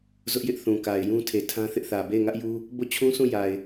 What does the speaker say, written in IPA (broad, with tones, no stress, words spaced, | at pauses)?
zʊ˦ʔjɪ˦ʔ θũ˨ka˨ɪ̯jũ˦ tʰe˨tʰã˦θɪ˦ʔθä˨ be˦˨ɪ̯ŋä˦ʔju˦ | bo˦˨t͡ɕʰũ˦sũ˦˨ja˨ɪ̯